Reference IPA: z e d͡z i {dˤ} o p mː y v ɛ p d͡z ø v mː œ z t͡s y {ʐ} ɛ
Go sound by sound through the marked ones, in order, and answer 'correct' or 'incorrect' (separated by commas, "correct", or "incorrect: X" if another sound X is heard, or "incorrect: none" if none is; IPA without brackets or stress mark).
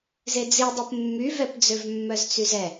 correct, incorrect: z